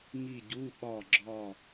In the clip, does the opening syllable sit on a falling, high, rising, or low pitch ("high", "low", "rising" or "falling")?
falling